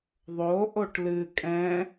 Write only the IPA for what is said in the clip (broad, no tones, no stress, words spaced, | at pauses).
ðˤo ʔoʈlɨ kʼɛ̃